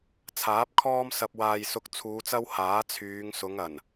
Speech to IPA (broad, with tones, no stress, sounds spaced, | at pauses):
t͡sʰ aː˨˥ p̚ kʰ ɔː˥ m s ɐ˧ p̚ w aː˨ j s ʊ˧ k̚ t͡sʰ uː˨˧ t͡s ɐ˥ w h aː˨˥ t͡sʰ yː˨˧ ŋ s ʊ˨˧ ŋ ɐ˨˩ n